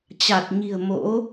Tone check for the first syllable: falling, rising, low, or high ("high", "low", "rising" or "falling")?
low